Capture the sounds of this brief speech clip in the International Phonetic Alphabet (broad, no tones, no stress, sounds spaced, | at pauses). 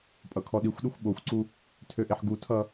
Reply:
pʼ ʌ kʰ ɔ ɗ i xʷ ɗ e xʷ ɓ o xʷ ǀ u | tʰ ø ʔ e ħ ɡ u tʰ ʌ